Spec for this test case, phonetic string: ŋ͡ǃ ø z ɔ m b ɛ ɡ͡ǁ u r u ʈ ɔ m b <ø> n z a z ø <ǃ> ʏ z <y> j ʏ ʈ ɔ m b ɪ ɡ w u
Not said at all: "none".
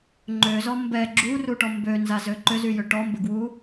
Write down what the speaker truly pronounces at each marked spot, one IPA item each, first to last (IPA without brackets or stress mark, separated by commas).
ø, ǃ, y